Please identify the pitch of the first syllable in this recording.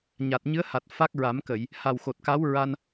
low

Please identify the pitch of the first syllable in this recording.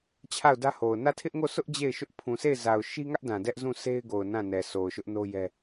falling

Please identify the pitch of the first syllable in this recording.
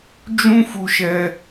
high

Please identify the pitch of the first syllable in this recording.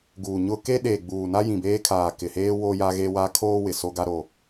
low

